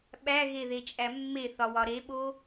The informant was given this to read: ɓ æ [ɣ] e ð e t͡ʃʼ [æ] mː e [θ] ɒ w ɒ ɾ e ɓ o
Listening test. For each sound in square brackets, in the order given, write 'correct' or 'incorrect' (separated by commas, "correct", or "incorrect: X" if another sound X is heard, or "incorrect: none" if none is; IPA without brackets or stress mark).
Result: correct, correct, correct